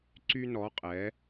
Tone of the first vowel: high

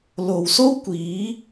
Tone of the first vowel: low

